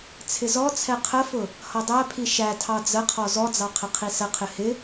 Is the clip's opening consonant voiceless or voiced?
voiceless